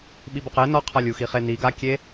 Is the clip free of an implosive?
no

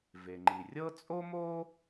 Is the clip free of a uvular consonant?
yes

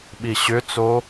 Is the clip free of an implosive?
no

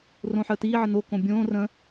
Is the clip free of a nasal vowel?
no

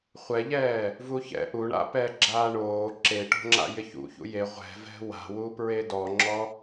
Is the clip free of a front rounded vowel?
yes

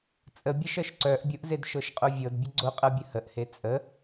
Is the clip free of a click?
no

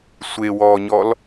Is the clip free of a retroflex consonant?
yes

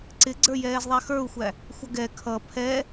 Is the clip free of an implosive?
yes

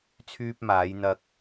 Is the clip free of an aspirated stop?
no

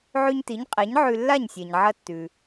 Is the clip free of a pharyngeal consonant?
no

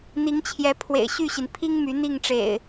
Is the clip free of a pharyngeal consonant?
yes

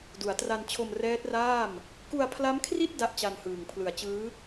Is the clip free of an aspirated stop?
no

